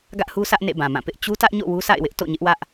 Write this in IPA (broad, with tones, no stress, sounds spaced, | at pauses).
ɡ ä˦ ʔ h u˦ s ä˦ ʔ n ḛ˦˨ b ã˨ m ã˦˨ p ɪ˦ ʔ t͡ɕ u˦ t ä˦ ʔ ɲ o̰˦˨ w u˦ s a̰˦˨ ɪ̯ w ɪ˦ ʔ t o̰˦˨ ɲ ɪ˦ ʔ w ä˦ ʔ